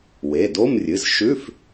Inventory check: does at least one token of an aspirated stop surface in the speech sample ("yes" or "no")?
no